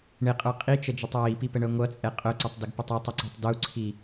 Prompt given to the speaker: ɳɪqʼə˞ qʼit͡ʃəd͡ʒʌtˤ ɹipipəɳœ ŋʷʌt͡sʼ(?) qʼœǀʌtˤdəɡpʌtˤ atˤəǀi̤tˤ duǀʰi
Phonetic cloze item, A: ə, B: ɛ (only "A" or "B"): B